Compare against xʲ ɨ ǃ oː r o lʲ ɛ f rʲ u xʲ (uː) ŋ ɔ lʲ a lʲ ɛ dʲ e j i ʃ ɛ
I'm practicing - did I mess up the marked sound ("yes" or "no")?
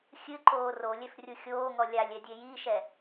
yes